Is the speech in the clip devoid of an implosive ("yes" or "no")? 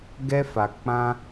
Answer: yes